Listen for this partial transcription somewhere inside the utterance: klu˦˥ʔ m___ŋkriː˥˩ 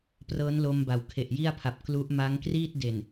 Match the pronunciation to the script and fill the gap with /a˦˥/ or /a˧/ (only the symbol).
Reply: a˦˥